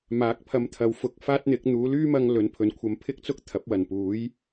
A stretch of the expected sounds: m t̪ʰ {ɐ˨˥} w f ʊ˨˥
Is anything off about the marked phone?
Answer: yes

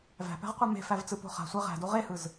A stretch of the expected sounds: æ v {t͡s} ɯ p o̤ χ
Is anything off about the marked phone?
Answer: no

